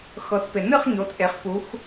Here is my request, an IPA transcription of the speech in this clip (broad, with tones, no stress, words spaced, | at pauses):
xɤ˩˧tpɪ˩nɨ˥˨χ ɲo˩˧tʔe˩˧χ pu˩˧x